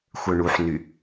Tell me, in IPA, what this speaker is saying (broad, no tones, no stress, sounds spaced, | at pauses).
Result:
xʷ œ ɳ u ħ n y